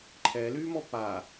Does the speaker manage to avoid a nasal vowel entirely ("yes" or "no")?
yes